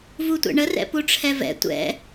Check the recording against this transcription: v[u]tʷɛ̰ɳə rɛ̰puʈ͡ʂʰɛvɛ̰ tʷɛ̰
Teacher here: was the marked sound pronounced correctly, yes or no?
yes